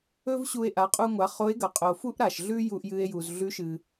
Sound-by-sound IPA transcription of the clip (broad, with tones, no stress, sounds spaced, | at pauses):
ɵ˥ v ɕ u˧ e̯ ʔ a˩˧ qʼ u˧ ŋʷ a˩˧ χ o˧˥ e̯ ɡ ɐ˩ qʼ o˩ f u˥ ʔ ɾ a˩ ʃ ɮ ʉ˥ j u˧ ʔ j ɨ˧ e̯ j u˩ z ɮ ʉ˧˥ ʃ ɨ˩